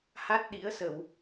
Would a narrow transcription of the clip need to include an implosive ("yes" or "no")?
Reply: yes